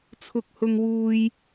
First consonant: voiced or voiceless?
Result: voiceless